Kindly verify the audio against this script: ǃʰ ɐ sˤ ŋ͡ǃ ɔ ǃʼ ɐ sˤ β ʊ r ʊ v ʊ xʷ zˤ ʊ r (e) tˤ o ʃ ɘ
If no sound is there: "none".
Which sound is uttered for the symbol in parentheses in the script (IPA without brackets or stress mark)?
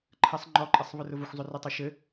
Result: ɘ